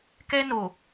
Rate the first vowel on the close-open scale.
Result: mid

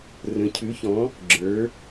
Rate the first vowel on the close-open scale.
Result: mid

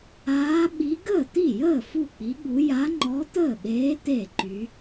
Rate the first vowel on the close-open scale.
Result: open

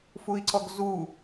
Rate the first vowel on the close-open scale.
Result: close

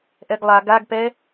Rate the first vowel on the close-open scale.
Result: mid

